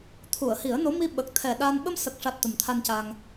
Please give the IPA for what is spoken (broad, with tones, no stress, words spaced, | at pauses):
t̪ʰu˨˩˨ə̯hi˨˩˦ə̯no˧˥ mi˧ɓə˨˩k̚ t̪ʰɛ˨˩ɗa˧n ɓə˧msə˨˩k̚ʂa˨˩t̚ t̪ə˨˩mt̪ʰa˧nca˧ŋ